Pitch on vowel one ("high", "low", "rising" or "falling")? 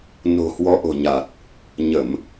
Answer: low